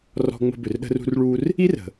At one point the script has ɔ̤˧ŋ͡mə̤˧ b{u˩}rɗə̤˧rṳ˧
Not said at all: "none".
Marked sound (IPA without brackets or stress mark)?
ʏ˩